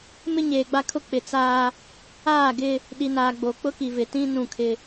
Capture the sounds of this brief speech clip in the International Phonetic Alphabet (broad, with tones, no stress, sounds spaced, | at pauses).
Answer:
m ɪ˦ ɲ eː˨ ɡ͡b a˦ kʰ ʊ˦ k͡p ɪ˨ t͡s aː˦ | aː˦˨ ɡ ɪ˦ | ɗ i˨ n aː˨ ɡ͡b o˨ k͡p ʊ˦ k i˨ v ɪ˨ t ĩ˦ n ũ˦˨ kʰ ɪ˦